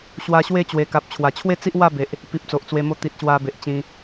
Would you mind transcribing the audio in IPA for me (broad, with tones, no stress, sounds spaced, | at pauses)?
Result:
ɕ w a˧ ɕ w e˥˧ t͡ɕ w e˨˩ k a˨ p̚ t͡ɕʰ w a˨˩ t͡ɕʰ w e˦ t͡s i˦ ʔ w a˥˧ b e˨ ʔ | p i˨ p̚ t͡s o˨ ʔ t͡s w e˧ m o˦ t̪ i˨ t̚ ɕ w a˧ b e˨ ʔ t͡ɕ ĩ˧